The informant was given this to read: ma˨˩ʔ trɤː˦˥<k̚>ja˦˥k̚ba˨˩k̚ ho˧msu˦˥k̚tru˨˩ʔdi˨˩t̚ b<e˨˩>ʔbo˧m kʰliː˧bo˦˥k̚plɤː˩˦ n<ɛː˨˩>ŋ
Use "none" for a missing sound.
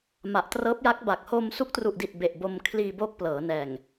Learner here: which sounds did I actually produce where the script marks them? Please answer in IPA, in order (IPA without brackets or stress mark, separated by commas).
p̚, e˨˩, ɛː˨˩